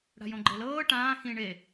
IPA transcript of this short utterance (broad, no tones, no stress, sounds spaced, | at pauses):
ɽ a̤ j õ ɡ͡ǃ e l ɤː ʈ ãː x ĩ ɳ e